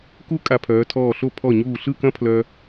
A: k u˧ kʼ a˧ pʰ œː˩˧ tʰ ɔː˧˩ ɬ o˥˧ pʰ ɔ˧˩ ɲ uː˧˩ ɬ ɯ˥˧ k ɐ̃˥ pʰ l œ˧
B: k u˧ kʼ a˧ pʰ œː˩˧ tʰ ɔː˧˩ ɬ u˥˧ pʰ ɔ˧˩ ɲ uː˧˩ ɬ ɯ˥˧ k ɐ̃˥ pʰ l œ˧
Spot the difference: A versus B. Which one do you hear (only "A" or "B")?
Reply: A